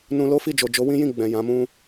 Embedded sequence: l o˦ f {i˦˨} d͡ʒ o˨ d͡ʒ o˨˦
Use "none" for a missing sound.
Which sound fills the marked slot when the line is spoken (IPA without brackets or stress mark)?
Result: i˦˨